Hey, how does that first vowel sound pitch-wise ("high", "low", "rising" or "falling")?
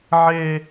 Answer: high